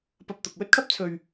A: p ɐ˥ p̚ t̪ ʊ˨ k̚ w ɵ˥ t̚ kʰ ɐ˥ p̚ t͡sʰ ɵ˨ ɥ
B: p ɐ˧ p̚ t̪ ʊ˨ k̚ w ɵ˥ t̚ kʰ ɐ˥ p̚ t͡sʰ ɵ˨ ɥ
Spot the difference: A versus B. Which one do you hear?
B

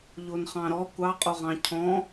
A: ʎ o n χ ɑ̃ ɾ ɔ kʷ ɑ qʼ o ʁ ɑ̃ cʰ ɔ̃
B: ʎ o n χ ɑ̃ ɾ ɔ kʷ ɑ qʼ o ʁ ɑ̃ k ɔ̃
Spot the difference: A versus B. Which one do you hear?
A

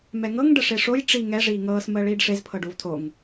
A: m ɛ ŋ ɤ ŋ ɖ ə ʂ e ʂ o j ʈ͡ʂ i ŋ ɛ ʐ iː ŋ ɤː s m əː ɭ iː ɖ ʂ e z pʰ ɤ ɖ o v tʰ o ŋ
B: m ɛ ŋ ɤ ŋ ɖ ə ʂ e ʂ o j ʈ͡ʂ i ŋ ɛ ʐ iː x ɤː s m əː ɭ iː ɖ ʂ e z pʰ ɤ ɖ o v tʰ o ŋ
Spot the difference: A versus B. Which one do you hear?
A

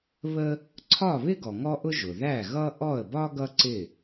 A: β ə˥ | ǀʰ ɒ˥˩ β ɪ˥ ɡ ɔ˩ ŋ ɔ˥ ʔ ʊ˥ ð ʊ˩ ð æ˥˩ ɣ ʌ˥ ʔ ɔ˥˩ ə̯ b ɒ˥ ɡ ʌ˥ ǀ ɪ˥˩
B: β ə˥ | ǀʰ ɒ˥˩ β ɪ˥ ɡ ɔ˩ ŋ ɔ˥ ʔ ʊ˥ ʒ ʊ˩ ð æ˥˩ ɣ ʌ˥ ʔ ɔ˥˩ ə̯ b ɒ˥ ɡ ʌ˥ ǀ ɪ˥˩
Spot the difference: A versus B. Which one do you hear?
B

